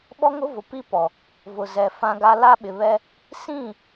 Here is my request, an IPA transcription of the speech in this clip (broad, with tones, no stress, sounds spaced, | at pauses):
ɓ ɔ˦ ŋ ʊ˦ v ʊ˨ p i˦ p ɔ˨ | v ʊ˨ z ɛ˨ f ã˦ ɡ a˦ l a˦ ɓ ɪ˨ β ɛ˦ | s ĩ˦˨